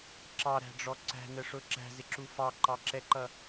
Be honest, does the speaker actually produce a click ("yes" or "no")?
yes